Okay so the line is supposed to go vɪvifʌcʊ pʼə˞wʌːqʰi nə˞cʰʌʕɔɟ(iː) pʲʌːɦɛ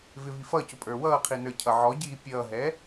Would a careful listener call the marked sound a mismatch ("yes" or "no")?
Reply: no